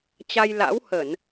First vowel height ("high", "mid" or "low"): low